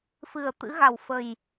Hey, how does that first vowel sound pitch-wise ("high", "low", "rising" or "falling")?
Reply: low